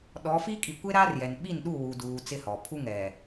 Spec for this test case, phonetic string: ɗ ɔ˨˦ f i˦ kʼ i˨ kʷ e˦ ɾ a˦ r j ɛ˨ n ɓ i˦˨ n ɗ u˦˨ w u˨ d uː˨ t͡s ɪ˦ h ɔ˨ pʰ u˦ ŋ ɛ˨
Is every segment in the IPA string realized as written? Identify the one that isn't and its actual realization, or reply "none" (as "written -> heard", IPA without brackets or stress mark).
none